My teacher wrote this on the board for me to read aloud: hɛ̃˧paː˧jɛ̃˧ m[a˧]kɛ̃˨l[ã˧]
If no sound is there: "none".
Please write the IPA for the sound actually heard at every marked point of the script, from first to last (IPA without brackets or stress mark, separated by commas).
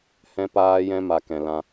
a˧, ã˧